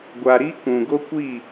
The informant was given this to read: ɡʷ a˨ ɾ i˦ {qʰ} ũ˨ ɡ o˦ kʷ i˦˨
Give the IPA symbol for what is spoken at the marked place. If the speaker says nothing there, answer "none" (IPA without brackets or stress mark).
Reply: k